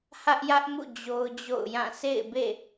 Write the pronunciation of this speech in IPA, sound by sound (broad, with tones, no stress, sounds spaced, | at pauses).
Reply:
h ä˦ ʔ j ä˦ ʔ m ṵ˦˨ d͡ʑ o˦ ʊ̯ d͡ʑ o̰˦˨ ʊ̯ j ã˦˨ sʰ ḛ˦˨ ɪ̯ b ḛ˦˨